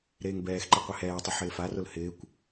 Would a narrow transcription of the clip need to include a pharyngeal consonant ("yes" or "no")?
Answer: yes